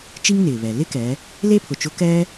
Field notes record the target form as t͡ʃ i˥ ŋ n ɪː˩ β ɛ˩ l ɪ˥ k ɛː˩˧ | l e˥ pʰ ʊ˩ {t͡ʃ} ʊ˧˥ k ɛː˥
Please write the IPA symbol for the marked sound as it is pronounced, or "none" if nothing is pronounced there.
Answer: t͡ʃ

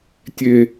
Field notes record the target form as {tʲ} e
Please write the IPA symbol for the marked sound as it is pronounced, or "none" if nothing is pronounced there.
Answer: tʲ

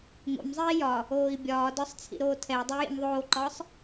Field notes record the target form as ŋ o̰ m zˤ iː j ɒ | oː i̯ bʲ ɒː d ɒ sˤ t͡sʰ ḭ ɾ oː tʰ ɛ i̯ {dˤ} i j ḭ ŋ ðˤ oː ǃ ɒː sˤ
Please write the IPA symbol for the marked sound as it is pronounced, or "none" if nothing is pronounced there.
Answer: dˤ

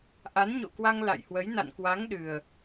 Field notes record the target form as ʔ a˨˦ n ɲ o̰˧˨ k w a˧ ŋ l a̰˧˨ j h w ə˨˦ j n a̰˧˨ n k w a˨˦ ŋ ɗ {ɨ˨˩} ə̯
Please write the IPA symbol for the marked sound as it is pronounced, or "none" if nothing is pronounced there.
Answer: ɨ˨˩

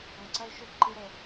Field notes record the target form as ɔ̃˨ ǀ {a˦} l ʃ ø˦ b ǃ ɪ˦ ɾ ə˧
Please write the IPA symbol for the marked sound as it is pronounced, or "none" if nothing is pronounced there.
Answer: ɐ˦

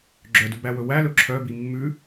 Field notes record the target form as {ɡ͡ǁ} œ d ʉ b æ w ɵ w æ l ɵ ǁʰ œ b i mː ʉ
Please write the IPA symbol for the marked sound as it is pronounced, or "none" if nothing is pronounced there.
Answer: ɡ͡ǁ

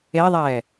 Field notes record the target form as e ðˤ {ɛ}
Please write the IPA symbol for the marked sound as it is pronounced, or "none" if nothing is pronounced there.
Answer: ɛː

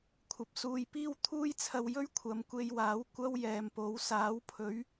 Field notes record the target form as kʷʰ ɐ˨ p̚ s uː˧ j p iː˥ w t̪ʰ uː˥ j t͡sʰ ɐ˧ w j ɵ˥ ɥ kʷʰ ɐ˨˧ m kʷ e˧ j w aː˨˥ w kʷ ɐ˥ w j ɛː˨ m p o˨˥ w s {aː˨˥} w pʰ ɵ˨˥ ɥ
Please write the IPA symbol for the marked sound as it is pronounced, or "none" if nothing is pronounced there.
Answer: aː˨˥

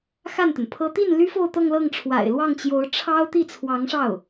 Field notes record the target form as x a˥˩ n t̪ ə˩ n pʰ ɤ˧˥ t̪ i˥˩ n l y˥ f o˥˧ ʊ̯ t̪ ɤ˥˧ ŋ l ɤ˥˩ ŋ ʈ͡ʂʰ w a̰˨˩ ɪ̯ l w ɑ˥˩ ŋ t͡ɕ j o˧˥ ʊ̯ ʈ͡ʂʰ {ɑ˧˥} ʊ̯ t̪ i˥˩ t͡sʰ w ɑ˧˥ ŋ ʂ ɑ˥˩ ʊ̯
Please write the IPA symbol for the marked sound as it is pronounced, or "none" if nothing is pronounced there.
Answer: ɑ˥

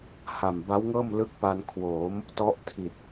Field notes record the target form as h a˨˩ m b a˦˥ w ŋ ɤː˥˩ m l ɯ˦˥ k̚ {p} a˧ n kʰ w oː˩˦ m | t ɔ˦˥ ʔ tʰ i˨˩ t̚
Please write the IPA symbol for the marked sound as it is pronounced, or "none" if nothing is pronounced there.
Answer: p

